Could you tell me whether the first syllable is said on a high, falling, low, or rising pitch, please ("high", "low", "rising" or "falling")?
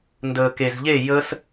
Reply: low